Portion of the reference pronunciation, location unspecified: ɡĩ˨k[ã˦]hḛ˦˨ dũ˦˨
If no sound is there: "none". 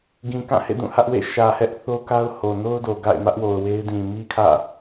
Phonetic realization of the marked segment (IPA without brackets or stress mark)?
ã˦˨